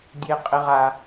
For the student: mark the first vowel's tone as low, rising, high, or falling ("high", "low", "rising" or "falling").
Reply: high